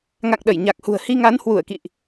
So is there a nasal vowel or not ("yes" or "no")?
no